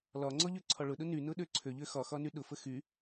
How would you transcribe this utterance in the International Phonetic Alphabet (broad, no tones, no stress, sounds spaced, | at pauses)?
l ɒ ŋ͡ǀ ɔ ʎ ø ǀʰ ɒ ɭ ʊ ɗ ʊ n y n ʊ ɗ ø ǀʰ ø ʎ ø x ɒ x ɒ n y ɗ ʊ f ə x y